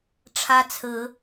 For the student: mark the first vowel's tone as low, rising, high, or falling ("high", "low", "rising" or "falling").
high